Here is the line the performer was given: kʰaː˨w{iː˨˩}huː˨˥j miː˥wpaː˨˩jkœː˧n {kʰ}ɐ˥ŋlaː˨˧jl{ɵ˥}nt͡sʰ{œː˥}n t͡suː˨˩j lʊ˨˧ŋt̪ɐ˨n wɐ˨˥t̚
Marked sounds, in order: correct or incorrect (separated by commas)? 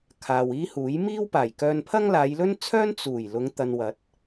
incorrect, incorrect, correct, correct